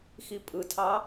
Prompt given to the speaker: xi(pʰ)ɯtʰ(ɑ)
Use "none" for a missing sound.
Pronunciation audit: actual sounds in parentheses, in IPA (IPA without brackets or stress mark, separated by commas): pʼ, ɑ